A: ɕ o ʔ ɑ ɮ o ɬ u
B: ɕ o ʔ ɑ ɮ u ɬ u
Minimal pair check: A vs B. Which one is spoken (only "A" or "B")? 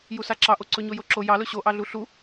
B